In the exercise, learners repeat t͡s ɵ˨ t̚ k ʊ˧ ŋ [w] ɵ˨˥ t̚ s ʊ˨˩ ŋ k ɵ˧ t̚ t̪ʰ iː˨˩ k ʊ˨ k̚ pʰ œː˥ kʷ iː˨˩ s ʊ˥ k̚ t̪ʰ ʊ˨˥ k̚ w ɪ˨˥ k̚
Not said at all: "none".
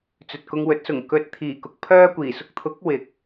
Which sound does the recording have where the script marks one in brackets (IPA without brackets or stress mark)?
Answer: w